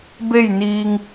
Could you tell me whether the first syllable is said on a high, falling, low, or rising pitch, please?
falling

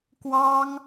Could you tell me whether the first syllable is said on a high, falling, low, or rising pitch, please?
high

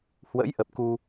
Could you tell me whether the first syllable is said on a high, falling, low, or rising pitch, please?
rising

